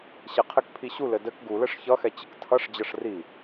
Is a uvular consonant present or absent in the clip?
present